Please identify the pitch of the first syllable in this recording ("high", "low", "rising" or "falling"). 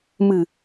low